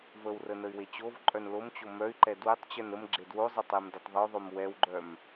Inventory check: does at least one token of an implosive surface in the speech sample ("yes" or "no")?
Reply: no